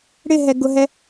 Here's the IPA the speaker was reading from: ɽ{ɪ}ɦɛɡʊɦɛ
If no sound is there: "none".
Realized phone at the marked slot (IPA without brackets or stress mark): ɪ